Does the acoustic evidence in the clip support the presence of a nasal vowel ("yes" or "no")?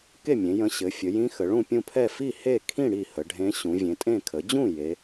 yes